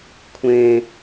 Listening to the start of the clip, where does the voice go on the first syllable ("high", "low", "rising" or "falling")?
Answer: low